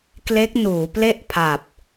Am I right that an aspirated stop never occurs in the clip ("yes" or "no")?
no